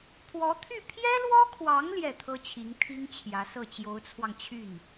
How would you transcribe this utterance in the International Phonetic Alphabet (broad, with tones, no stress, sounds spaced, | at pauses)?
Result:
pʰ w ɔ˧˥ t̪ʰ y˥˩ pʰ j ɛ˥ l w ɔ˥ kʰ w ɑ˧˥ ŋ l j ɛ˥˩ t̪ʰ ɤ˥ t͡ɕʰ i˧˥ ŋ t̪ʰ i˥ ŋ t͡ɕʰ j ä˧˥ s ɤ˥˩ t͡ɕ j o˧˥ ʊ̯ t͡sʰ w ɑ˧ ŋ t͡ɕʰ y˥˩ n